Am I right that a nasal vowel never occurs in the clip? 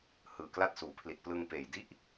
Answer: yes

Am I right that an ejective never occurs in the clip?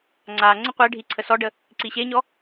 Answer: yes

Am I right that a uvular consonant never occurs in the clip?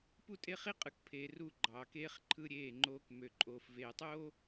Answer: no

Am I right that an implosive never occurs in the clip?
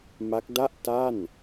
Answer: yes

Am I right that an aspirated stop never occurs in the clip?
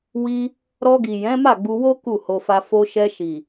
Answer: yes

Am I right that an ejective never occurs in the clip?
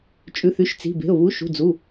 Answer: no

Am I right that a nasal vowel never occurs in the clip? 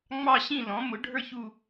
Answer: no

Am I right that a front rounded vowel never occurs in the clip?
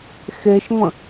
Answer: yes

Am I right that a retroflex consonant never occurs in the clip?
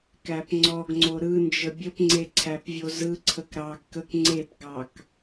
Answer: yes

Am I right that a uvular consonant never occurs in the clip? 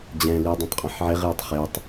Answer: no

